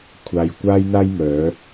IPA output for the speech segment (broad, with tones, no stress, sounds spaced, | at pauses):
kʷʰ aː˨ j kʷ aː˧ j n̪ aː˧ j m œː˨˧